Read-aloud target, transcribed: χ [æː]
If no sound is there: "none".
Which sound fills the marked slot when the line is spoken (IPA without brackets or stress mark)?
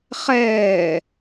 ɛː